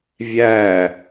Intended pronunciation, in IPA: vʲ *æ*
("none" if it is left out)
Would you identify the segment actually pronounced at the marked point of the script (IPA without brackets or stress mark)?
æ